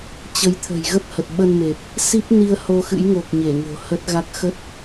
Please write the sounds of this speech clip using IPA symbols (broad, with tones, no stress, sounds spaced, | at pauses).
t͡ɕ ə˨˦ j t̪ʰ ə̤˨˩ j ɣ ə˦˥ p̚ h ə˨˩ t̚ ɓ ə˧ n m e˨˩ p̚ | s i˦˥ p̚ n i˧ ə̯ h o˧ x ɨ̰˧˥ j ŋ o˨˩ k̚ ɲ e˧˩ ŋ o̤˨˩ h ə˦˥ t̚ ɣ a˦˥ k̚ x ə˦˥ t̚